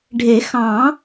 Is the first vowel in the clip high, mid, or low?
mid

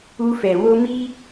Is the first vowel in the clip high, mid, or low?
high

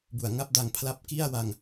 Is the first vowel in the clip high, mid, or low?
high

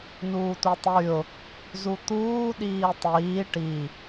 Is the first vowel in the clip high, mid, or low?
high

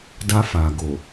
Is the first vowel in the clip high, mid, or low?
low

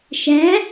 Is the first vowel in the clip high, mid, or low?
low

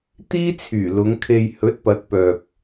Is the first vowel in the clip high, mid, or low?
high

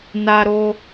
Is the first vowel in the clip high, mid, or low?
low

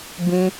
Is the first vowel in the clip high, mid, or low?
high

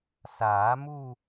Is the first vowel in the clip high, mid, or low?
low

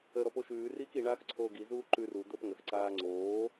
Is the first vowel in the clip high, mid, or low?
mid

